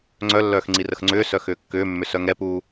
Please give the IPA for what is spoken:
ŋ͡ǀœlːœːx ŋ͡ǀirəxŋ͡ǀʏːsœ xʏːkːʏːmːʏ sœŋɛpuː

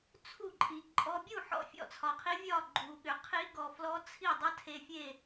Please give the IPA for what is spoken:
t͡sʰu˥˨ǃʼi˨ǃʼɔ˦˥ bʲu˥˨ ħɔ̰˥˨fʲɔ̰˥˨t͡sʰɒ˨qʰi˦˥ vʲɒ˥˨ ɡ͡ǃu˨ɠʏ˨ qʰi˦˥ɡɔ˨ flɔ˦˥t͡sʰi˥˨ dˤʌ˦˥tʰe˨ fʲe˥˨

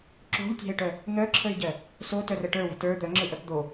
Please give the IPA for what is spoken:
ǁo̤ʎtʲa̤ɪ̯ʈœ | n̪œǁʰəɪ̯ɟɜ | sotœrə ʈə˞wə̤ tə˞ d̪œŋ͡ǁɯʔœp d̪o

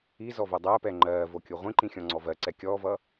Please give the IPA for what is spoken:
izɔvo dˤɜpɛ ŋ͡ǃɜːvokʲu ʁʷĩǃĩxʲɔ̃ŋ͡ǀɔ vɜǀɛ kʲɔːvʌ

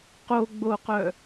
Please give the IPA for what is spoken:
qoɡ͡boqœ

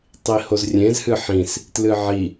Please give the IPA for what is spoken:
tˤihozrʲẽz hɨħĩs | tlɨʕi

